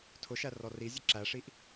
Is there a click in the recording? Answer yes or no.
yes